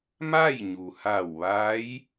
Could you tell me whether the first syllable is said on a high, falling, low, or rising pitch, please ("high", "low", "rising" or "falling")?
falling